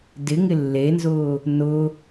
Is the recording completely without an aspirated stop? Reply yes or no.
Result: yes